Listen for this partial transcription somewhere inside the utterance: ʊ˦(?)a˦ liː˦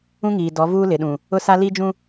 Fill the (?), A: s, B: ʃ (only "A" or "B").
A